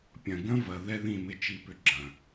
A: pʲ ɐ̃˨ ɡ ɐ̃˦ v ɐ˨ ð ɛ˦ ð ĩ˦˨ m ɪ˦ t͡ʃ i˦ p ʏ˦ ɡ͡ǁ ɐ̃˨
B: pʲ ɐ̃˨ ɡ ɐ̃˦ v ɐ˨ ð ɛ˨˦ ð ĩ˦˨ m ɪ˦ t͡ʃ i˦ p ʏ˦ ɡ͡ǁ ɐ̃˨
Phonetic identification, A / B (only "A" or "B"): A